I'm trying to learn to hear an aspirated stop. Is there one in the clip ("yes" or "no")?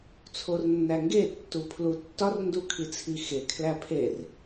yes